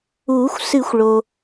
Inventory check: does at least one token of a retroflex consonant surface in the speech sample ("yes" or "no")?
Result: yes